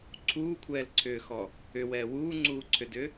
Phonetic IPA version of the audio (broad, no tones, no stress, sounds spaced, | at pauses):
ǀʰ uː kʷʰ ɛː l ǀʰ ʏː x ɔ | ʏ w ɛː w uː ŋ͡ǀ uː ǀʰ ʏ d ʏ